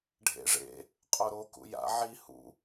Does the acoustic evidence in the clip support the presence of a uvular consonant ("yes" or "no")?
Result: yes